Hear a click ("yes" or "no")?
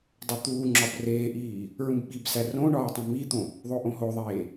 yes